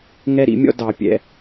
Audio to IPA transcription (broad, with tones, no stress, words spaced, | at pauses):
ŋɛ˦ɾḭ˨˦mʲɔ̰˦ dɑ˧pʲɛ̰˧